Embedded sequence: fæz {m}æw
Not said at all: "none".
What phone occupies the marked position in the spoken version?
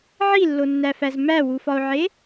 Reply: m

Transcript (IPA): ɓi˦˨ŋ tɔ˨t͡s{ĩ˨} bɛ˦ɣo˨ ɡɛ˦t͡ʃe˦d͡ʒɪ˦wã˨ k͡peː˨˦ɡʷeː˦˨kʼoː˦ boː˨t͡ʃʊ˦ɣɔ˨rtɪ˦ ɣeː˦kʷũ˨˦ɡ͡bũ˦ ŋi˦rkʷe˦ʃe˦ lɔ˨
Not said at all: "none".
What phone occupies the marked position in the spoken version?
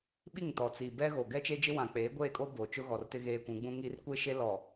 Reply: i˨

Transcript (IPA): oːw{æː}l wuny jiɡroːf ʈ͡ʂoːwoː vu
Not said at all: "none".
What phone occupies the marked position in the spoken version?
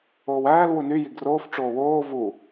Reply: æː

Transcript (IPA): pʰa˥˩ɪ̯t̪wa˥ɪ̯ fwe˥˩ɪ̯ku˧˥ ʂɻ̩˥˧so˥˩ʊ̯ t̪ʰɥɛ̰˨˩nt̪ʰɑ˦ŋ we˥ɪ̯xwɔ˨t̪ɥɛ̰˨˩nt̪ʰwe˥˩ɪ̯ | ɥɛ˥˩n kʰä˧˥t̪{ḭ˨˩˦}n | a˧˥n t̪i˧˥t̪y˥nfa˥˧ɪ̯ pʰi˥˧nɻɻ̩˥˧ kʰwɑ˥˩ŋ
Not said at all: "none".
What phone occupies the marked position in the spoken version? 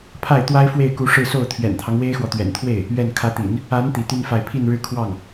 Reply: ḭ˨˩˦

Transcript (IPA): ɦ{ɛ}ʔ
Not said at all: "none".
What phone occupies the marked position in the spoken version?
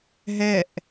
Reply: ɛ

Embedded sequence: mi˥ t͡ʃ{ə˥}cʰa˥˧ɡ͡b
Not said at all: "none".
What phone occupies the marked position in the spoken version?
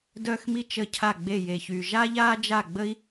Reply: ə˥˧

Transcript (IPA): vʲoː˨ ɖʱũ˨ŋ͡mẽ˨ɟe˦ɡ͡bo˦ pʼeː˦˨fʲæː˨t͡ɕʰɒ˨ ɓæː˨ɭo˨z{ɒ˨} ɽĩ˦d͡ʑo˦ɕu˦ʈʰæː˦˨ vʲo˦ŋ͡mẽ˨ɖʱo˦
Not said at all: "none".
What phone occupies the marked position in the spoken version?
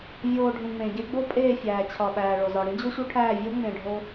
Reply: ɒ˨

